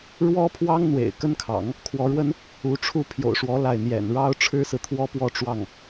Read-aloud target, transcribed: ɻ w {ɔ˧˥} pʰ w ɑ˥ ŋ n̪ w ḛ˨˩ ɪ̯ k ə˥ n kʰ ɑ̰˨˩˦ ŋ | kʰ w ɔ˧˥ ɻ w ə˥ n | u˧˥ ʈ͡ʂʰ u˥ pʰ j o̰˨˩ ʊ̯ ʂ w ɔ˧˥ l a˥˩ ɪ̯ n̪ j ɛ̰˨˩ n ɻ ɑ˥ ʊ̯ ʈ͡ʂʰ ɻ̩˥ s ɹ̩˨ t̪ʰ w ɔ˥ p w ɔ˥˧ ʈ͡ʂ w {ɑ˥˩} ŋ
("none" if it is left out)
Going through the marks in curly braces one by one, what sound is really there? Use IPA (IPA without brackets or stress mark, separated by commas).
ɔ˥, ɑ˥˩